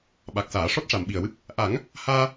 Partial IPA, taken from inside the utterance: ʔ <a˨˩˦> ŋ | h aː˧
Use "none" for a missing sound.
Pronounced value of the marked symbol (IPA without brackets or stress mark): a˨˩˦